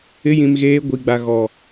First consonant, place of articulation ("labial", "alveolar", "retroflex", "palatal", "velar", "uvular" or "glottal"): palatal